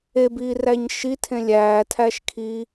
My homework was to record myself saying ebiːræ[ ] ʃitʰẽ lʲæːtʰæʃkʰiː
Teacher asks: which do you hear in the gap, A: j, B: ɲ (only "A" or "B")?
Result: B